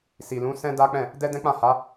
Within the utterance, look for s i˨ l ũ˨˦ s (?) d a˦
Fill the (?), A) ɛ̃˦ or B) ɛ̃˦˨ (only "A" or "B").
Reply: A